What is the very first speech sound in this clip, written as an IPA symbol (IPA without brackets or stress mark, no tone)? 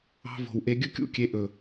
ɑ̤